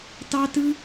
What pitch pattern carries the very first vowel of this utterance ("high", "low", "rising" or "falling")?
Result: high